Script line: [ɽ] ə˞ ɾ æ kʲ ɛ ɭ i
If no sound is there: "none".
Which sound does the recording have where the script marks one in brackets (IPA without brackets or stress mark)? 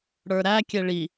ɽ